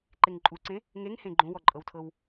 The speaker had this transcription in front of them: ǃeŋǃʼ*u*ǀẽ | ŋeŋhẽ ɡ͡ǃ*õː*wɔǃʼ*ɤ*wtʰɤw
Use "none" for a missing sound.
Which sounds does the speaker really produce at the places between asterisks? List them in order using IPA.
u, õ, ɤ

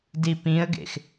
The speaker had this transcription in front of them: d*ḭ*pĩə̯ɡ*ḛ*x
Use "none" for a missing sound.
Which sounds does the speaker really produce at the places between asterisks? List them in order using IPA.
i, ḛ

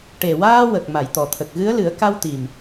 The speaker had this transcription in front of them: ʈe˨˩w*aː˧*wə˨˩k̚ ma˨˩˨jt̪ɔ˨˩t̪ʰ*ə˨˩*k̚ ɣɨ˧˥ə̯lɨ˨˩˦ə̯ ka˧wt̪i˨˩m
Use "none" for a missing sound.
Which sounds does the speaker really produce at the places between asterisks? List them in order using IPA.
aː˧, ə˨˩

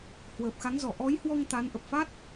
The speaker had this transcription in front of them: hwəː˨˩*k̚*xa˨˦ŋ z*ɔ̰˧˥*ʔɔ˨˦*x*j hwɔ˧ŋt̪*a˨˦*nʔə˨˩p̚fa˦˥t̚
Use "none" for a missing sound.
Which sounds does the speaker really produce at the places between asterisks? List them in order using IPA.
p̚, ɔ˧˩, none, a˨˦

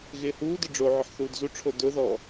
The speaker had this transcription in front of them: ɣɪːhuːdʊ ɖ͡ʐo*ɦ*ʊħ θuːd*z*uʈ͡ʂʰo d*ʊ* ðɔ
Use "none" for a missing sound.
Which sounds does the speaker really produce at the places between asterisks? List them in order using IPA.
ʕ, z, ʊ

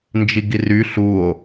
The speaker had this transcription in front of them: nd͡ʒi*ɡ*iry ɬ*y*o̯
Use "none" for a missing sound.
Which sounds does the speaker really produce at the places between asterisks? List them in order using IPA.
ɡ, u

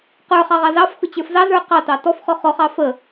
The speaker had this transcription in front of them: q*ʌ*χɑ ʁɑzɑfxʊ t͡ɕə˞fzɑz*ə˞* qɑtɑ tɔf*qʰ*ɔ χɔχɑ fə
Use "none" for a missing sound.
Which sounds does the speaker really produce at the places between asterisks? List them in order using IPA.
ə˞, ə˞, χ

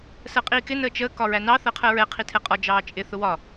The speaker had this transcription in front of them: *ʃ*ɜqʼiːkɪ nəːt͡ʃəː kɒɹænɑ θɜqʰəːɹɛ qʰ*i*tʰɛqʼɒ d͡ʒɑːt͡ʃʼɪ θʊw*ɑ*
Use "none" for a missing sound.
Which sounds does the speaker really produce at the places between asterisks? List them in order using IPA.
s, i, ɒ

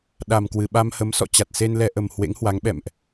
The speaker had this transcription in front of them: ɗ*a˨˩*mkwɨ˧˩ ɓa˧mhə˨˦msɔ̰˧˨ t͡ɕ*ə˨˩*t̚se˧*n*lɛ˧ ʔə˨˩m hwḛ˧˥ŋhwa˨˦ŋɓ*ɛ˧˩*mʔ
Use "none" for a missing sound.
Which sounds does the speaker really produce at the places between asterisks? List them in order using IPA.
a˨˩, a˨˩, n, ɛ̰˧˨

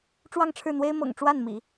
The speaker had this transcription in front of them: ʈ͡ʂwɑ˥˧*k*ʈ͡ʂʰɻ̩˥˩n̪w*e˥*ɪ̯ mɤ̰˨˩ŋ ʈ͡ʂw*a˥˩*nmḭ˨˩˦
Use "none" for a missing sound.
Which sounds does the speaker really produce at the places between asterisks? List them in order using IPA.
ŋ, e˥, a˥˩

